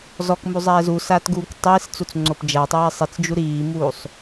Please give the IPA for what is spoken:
z ɔ k m u zˤ ɛː z u s aː t ɡ uː k tˤ iː s t͡s u t͡s ŋ͡ǀ o p d͡ʒ a tˤ ɛː sˤ i t͡s d͡ʒ u ɾ iː m uː sˤ

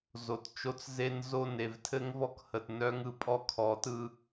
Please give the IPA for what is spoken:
z o˨ t t͡ʃ o˦ t͡s z e˦ n z o˦˨ n e˨ v tʰ ɘ˦ ŋ v ɔ˦ k h ə˨ t n œ˦ ŋ ɯ˨ pʼ ɔ˦ kʰ ɔ˨˦ t ɯ˦

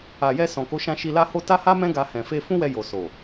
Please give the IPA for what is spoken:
a˨ j ɛ˧ s ɔ̃˨ k o˨˦ ʃ ã˧ ʃ i˧ l a˦ h o˦ t a˦ h a˦ m ɛ̃˦ ɡ a˧ h ɛ̃˨ f e˧ f ũ˦ w ɛ˧ j o˨ s o˨

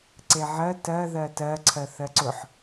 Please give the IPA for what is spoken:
ǀ e ʕ ɜ t ɜ ð ɜ t ɜ ǀʰ ɜ θ ɜ ǀ ʊ ħ

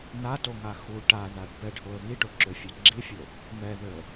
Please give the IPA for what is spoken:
n a t o ŋ a x u ʈ a ð a ɖ b ɛ ɖ h o ə̯ β i ʈ o ǁ ø fʲ ɛ ɡ͡ǁ i fʲ o | m ɛ ð ø ə̯

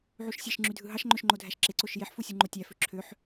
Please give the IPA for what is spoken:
ʕ u ʃ sʲ e ʃ ŋ͡ǁ y dʱ ɯ ɦ ɑ ʃ ŋ͡ǃ ø ʃ ŋ͡ǃ o dʱ æ ʃ ǁ e ǀ o ʃ j e ħ f u sʲ u ŋ͡ǃ o tʲ æ f ø ǁʰ ø ħ

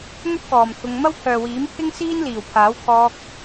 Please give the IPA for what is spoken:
ŋ ɵ˥ t̚ k ɔː˨ m t̪ʰ ʊ˧ ŋ m ɐ˥ w pʰ œː˨ w iː˨˥ m pʰ ɪ˥ ŋ s iː˥ n l iː˨˩ w pʰ aː˨˥ w kʰ ɔː˧ k̚

